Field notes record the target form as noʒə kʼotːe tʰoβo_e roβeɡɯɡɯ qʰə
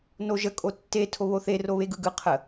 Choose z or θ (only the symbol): θ